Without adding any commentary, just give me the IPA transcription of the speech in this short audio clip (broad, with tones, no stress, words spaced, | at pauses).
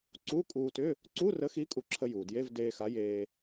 ǀu˧˥˧kʼuː˧tʏ˧˥˧ | ǀu˧˥˧rə˨˥xi˨˥ kʼu˧ǁʰə˧juː˩dje˧˥˧v deː˧xa˨˥ jeː˧